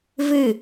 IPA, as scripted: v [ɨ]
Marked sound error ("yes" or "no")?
no